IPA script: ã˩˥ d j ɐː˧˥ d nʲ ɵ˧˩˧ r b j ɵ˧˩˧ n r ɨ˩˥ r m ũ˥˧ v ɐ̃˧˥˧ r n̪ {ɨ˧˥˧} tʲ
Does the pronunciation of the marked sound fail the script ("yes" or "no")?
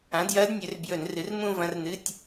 no